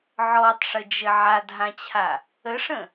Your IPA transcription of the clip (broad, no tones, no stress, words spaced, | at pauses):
ʕɔtˤʂəd͡ʒɘ ʕadɦãt͡ɕʰa | əʂə̃